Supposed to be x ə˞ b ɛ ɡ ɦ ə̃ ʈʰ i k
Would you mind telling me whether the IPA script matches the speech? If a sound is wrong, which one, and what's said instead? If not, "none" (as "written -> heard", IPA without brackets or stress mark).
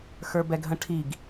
k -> ɡ